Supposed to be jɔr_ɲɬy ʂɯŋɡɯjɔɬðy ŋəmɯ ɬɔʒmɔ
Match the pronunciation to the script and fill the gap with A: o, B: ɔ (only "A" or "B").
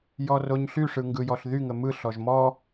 A